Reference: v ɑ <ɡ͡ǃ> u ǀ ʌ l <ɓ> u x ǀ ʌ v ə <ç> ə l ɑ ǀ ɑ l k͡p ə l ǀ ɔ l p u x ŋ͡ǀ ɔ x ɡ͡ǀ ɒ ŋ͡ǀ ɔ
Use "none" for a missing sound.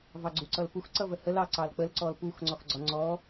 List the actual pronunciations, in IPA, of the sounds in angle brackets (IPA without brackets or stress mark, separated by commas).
ɡ͡ǀ, p, h